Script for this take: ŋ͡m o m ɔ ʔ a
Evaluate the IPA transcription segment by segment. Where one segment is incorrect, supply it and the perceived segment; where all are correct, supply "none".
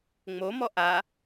none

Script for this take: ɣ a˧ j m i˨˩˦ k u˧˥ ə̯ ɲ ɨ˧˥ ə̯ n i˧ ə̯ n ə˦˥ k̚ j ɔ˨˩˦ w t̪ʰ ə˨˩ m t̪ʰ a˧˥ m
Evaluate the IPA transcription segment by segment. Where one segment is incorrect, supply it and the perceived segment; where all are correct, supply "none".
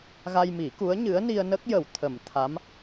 ɔ˨˩˦ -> ə˨˩˦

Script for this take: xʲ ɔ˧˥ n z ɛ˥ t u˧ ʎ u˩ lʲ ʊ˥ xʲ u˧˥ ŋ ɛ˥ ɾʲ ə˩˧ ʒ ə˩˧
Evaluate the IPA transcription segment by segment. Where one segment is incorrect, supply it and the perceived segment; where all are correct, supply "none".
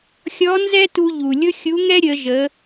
none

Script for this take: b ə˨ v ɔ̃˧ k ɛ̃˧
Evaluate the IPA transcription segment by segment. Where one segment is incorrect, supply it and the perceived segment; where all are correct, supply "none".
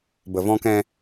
none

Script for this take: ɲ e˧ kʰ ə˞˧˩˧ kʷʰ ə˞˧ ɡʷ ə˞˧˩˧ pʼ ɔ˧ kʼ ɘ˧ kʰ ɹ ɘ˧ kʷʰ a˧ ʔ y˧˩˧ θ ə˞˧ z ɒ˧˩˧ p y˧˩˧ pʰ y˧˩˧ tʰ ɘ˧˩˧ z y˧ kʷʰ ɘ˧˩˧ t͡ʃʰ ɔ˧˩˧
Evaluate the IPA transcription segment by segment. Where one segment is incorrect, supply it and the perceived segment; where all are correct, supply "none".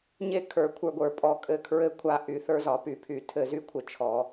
none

